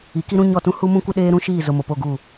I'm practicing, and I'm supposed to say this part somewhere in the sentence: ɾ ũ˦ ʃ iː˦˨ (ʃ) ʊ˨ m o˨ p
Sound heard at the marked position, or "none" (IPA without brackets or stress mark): z